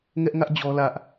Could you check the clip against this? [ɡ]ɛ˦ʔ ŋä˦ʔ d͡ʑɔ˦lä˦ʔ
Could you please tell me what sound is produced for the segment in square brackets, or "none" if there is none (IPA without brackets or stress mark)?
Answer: ŋ